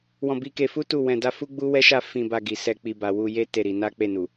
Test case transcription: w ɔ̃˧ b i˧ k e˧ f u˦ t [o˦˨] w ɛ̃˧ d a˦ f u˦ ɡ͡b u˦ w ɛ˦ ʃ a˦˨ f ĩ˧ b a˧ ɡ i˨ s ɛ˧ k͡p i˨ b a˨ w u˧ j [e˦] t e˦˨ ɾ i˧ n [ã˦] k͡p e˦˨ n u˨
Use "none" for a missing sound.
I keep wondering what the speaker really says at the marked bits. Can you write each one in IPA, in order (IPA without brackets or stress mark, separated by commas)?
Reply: u˦˨, e˦, a˦